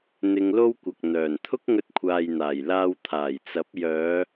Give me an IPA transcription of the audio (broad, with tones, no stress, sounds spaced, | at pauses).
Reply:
n̪ ɪ˧ ŋ l o˥ w kʷ ɐ˨ k̚ n̪ œː˨˩ n t̪ʰ ʊ˥ k̚ ŋ ɵ˧ t̚ kʷʰ aː˨ j n̪ aː˨˩ j l aː˧ w t̪ʰ aː˨˩ j t͡s ɐ˨˥ p̚ j œː˨˧